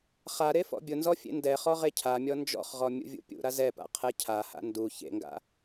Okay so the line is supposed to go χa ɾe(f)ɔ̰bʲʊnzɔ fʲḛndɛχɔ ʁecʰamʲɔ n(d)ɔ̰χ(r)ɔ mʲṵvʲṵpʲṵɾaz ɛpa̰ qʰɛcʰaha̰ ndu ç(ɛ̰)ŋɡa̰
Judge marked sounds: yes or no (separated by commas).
yes, no, no, no